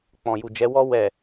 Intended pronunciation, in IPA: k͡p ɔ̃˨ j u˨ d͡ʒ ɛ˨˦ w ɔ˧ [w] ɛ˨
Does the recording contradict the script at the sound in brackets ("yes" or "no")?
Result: no